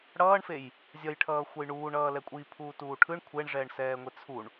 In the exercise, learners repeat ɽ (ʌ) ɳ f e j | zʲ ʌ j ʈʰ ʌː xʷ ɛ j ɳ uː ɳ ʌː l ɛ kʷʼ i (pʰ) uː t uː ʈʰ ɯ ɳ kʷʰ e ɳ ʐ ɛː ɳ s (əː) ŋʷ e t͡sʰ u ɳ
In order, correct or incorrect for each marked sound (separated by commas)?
incorrect, correct, incorrect